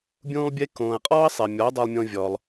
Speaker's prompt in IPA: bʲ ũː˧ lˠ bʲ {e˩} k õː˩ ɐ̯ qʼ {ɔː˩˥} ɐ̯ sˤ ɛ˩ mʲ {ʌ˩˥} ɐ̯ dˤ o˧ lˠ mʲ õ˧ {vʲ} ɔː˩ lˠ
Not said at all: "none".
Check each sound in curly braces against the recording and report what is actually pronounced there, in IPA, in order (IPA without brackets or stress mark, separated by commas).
e˧, ɔː˥, ɔ˩˥, vʲ